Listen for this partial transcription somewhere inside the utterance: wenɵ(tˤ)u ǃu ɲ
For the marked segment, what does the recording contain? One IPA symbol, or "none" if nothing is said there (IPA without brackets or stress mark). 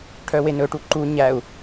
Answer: ʈ